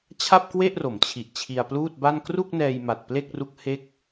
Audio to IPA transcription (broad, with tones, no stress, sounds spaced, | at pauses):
t͡ɕʰ a˥˩ p̚ k w e˥˩ ʔ r o˩˦ m t͡ɕʰ i˨˩ ʔ t͡ɕʰ i˧ a̯ p l uː˥˩ t̚ b a˥˩ n k r u˥˩ k̚ n ɛː˧ j m a˨˩ t̚ p l e˥˩ k̚ r u˦˥ k̚ h e˥˩ k̚